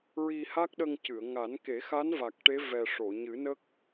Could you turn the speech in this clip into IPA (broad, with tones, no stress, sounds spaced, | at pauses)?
ɹ i˧ h a˦˥ k̚ ɗ ə˧ ŋ c ɨ˨˩˨ ə̯ ŋ a˨˩˦ n k e˨˩˦ x a˧˥ n v a˨˩ k̚ ʈ e˧˥ v ɛ˨˩ ʂ o˨˩˨ ɲ ɨ˨˩˦ n ə˦˥ k̚